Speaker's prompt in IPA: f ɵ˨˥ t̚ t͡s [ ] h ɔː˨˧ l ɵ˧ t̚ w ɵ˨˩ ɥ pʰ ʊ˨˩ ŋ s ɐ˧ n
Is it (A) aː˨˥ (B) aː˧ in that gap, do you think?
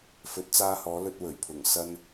B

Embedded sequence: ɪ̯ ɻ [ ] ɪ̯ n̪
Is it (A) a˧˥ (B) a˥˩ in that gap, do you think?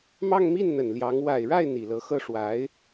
B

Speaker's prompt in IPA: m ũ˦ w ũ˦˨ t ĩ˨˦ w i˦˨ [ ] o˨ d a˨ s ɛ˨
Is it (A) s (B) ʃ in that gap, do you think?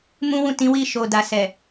B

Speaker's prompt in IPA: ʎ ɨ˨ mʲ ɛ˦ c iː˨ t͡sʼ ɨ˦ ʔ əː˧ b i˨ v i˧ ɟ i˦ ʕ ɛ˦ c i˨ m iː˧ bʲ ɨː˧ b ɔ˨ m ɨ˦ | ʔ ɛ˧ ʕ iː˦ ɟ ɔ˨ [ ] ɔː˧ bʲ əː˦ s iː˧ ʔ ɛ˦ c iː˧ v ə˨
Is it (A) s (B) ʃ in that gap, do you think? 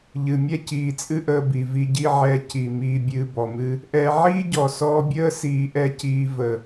A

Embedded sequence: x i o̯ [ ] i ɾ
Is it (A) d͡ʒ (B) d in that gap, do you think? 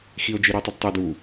A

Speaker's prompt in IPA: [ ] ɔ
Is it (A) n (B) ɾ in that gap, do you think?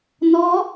A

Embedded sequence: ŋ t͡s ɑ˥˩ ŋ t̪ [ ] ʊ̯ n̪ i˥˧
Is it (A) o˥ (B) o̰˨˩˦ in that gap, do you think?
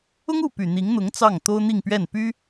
A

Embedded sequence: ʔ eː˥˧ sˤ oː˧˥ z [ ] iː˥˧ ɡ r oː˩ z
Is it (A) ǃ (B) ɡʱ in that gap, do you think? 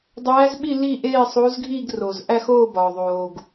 B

